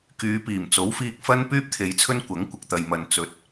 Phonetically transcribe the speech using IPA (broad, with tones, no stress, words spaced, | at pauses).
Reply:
kyː˨˧piː˨˩m t͡so˨˥wfiː˧k̚fɐ˥n pyː˥p̚t̪ʰe˨˧jt͡sʰɵ˥n kʷɐ˨˥ŋ kʷɪ˧k̚ t̪ɐ˨jmɐ˨n t͡sɵ˨t̚